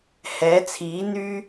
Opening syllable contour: rising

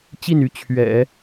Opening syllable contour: falling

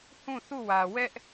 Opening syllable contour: falling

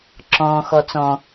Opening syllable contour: low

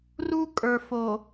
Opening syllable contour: high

